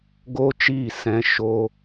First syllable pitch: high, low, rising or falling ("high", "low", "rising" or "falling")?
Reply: high